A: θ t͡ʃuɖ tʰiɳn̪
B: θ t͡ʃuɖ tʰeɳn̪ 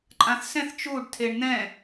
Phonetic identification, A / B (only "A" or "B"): B